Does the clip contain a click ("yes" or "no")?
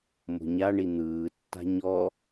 no